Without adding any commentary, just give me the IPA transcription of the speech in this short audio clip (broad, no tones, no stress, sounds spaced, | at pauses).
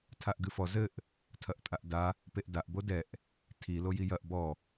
tʰ a ʔ ɡ ɨ f ɔ z ɘ ʔ | tʰ ɐ ʔ tʼ a ʔ d a | p e ʔ d a ʔ b o d ɛ ʔ | tʰ i l o j i j ɐ ʔ b ɔ